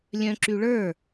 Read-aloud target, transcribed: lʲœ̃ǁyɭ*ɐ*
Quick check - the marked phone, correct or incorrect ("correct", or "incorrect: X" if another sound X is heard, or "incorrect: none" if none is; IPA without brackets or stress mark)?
incorrect: ə˞